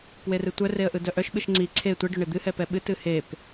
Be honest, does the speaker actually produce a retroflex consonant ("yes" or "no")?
yes